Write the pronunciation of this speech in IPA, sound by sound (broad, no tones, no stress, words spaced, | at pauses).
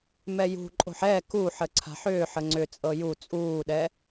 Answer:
mɛjṳǃʼo̤ħ ɛ kuħə ǀʰa̤ħʏːħə ŋ͡ǀʏt͡sʼɤ ju t͡sʼuːɗɛ